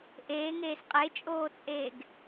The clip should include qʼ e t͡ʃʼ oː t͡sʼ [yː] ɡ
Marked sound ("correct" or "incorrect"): incorrect